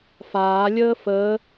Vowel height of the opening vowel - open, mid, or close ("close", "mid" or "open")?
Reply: open